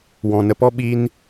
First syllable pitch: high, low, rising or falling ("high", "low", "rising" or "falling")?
low